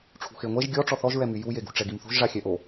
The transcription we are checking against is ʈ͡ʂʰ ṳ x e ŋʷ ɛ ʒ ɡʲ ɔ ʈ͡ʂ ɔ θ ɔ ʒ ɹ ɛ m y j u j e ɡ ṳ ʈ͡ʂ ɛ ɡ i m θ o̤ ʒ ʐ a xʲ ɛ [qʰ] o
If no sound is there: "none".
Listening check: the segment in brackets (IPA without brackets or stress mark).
ʔ